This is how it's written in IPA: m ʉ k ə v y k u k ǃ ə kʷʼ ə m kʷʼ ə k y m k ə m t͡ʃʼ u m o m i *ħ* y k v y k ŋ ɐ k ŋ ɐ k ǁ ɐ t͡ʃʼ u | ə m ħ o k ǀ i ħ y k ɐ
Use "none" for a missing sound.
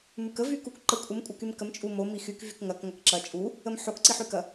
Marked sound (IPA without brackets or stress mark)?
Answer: x